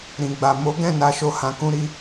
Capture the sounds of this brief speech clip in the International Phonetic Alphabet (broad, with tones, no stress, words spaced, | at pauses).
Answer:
ɾĩ˨ɡ͡ba˨ mo˨˦ɡɛ̃˦˨ na˧ʃo˧hã˧ kũ˧ɾi˧